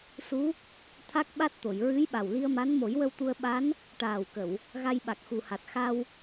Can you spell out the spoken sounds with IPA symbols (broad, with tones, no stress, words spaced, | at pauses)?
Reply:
su˧˥ | t̪ʰa˦˥k̚ɓa˦˥t̚t̪o˨˩˨j ɹɨ˧˥j ɓa˨˩wli˧ə̯ma˧˥n mo˨˩˦jwə˧wt̪u˧ə̯ ɓa˧˥n | ʈaː˨˩wkə˨˩˨w | ɣa˧jɓa˨˩k̚xu˨˩ha˨˩t̚ xa˧w